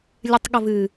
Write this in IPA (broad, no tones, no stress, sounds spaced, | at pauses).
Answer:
lʲ ɨ tˤ ɠ ə v ɨ